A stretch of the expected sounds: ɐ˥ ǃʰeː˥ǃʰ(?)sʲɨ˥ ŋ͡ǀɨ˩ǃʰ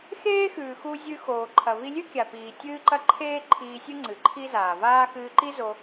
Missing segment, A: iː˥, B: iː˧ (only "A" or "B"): B